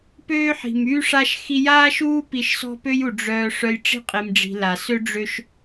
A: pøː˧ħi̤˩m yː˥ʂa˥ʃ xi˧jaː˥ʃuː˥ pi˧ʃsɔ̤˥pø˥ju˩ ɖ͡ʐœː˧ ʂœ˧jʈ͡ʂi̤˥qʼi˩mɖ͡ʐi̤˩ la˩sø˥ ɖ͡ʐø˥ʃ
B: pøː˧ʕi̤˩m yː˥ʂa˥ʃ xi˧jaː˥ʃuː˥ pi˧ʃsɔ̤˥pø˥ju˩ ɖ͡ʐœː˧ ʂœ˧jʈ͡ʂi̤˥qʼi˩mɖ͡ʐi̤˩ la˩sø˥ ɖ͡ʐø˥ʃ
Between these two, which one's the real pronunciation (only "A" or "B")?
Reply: A